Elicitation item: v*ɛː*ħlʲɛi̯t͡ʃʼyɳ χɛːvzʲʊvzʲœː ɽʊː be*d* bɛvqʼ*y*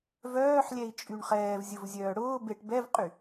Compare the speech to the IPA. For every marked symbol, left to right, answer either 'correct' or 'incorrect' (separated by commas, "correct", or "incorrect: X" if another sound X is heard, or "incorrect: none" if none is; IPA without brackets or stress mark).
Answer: incorrect: œː, incorrect: ʈ, correct